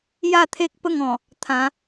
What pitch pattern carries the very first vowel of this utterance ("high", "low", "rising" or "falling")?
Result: falling